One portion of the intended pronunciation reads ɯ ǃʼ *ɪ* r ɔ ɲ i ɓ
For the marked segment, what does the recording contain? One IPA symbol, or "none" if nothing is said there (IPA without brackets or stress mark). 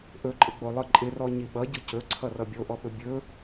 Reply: ɪ